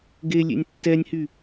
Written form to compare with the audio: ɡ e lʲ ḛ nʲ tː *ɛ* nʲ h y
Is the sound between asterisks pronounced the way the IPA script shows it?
yes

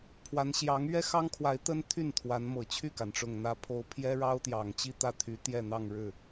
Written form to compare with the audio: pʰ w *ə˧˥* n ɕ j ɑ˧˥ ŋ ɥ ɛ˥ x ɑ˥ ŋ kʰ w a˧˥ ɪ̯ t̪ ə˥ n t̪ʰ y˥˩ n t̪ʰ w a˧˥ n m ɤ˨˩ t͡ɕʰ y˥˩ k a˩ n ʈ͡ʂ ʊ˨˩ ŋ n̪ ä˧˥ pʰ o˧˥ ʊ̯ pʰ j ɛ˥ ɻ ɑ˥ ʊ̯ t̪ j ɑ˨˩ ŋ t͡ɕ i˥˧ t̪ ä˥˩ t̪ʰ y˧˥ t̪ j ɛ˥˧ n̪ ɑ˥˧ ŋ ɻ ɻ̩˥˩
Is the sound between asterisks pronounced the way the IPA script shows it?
no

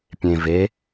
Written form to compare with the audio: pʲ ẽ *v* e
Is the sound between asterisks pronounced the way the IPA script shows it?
yes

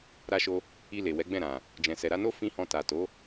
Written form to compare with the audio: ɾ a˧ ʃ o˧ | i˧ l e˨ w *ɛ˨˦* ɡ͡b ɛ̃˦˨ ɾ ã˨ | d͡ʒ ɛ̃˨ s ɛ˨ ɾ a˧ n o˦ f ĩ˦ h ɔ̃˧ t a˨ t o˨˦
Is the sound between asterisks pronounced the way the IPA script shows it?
yes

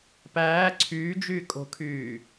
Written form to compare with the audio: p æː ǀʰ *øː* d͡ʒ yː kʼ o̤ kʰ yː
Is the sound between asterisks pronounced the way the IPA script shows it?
no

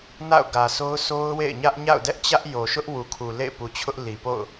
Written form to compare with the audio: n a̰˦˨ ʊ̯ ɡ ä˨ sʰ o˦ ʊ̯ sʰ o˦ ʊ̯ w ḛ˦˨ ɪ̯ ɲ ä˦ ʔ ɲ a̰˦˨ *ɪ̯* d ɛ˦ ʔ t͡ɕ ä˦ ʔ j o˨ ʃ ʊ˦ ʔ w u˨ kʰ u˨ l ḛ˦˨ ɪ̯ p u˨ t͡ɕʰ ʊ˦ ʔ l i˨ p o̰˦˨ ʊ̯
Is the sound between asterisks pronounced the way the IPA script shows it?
no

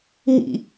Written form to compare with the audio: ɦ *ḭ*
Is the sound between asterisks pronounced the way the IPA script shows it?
yes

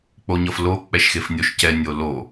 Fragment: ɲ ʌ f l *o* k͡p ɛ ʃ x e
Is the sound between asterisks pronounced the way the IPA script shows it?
yes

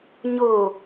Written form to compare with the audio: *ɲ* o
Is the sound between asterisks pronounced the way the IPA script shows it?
yes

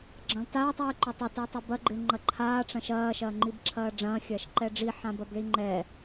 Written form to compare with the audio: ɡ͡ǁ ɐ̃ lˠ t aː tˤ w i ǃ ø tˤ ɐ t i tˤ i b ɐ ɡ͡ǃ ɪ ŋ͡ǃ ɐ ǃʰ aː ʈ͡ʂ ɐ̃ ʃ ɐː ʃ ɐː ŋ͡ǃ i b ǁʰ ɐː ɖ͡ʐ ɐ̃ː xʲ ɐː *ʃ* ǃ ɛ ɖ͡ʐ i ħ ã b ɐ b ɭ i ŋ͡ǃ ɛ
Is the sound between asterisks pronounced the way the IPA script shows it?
yes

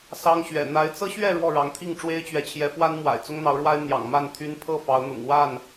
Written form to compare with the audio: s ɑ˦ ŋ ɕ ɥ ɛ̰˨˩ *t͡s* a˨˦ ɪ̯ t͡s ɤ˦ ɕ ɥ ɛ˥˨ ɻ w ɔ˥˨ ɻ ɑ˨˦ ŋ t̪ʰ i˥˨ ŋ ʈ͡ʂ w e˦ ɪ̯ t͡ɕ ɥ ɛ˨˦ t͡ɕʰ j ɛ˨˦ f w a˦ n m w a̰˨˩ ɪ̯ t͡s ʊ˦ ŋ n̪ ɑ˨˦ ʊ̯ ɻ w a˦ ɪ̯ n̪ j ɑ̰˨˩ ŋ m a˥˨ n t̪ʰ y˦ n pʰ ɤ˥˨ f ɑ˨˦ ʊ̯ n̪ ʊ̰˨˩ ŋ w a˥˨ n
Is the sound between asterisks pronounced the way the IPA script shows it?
no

